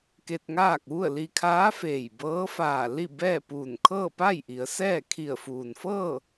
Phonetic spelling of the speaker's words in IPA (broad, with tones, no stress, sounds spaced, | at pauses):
k e˧ t̚ ŋ aː˥˨ k̚ ʋ u˥˨ ə̯ l i˧ kʰ aː˧˥ f eː˧˩ j b ɤː˧˥ f aː˧˩ l i˥˨ b ɛː˥˨ p uː˧˩ n kʰ ɤː˥˨ p a˥˨ j ʔ i˩˧ ə̯ s ɛː˥˨ kʰ i˧˩ ə̯ f uː˩ n f ɤː˥˨